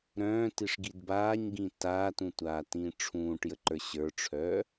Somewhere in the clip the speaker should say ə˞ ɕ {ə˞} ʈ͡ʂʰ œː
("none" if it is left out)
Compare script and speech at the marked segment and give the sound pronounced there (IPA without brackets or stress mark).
ə˞